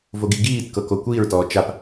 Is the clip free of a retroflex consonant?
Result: yes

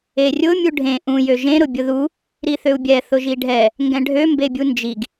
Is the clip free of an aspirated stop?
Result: yes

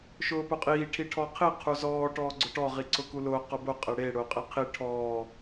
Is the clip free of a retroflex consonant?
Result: no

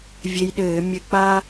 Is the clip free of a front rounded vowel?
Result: yes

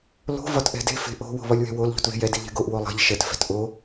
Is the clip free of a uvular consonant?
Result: yes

